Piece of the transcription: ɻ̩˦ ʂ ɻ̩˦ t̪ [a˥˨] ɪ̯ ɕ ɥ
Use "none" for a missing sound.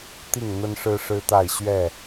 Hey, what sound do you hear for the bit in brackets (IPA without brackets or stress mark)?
a˥˨